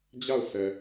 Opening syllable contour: falling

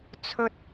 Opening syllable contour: high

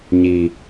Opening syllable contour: low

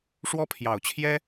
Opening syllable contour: high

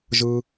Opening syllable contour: high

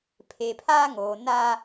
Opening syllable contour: low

